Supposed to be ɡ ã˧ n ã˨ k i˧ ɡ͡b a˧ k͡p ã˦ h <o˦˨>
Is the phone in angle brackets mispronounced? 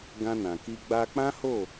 no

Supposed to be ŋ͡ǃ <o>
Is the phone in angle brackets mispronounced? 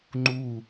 yes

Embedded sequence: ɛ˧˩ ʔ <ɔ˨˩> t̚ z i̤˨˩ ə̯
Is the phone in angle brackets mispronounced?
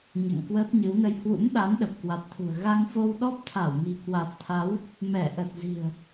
yes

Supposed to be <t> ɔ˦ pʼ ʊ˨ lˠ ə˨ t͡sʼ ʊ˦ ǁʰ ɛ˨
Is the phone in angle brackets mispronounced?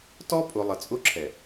no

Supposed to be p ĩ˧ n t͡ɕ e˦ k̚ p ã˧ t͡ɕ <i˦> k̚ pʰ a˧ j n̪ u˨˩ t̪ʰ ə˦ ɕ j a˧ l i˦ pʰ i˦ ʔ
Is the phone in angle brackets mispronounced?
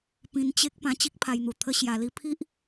no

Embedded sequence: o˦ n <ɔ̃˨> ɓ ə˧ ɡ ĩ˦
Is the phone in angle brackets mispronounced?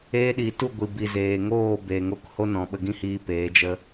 no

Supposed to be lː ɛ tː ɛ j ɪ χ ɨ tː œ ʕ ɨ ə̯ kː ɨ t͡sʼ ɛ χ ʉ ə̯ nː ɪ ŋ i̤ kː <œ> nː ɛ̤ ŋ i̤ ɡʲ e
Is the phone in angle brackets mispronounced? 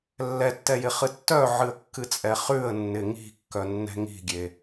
no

